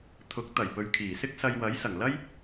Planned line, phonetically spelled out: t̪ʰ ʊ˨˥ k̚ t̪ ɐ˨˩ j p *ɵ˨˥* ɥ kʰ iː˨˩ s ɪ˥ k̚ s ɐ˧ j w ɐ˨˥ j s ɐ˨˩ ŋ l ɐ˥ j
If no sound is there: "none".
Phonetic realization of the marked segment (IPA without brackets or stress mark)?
ɵ˨